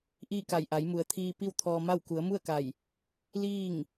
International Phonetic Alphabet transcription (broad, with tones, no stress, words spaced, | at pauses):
ʔiː˥˨ka˧˩j ʔa˩˧jmu˩ə̯t̪ʰiː˧ pi˥˨wt̪ʰɔː˧ma˥˨w ku˩˧ə̯mu˥˨ə̯ka˧˩j | liː˥˨ŋ